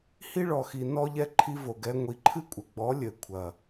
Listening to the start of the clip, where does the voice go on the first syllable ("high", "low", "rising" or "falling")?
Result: high